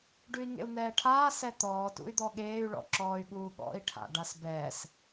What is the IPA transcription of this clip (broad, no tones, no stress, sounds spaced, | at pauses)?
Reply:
ɖ ʉ i̯ ŋ ḛ u̯ n̪ ɛː ʈʰ aː s ɛ t̪ ɔː t ṵ y̯ d̪ ɔ ɠ eː y̯ ɭ ɔ̰ ǁ ɔː y̯ ɠ uː ɠ ɔ̰ i̯ ʈʰ a̰ ɖ a s b ɛː s